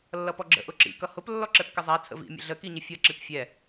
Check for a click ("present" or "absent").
present